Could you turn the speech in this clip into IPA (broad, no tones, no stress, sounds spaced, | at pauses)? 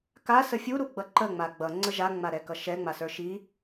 k a s ə fʲ u ɾ u ɡ͡b ʌ ǃ ə ŋ͡m a ɡ͡b ʌ ŋ͡ǀ ə ʒ a ŋ͡m a ɾ ɛ k ʌ ʃ ɛ ŋ͡m a s ə˞ ʃ i